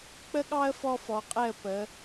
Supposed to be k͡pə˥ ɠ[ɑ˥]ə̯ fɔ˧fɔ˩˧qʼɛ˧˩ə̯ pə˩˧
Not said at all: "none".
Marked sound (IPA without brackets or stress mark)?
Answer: ɑ˥